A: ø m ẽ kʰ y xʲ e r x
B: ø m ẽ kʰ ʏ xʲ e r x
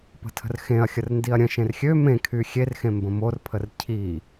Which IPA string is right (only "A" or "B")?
A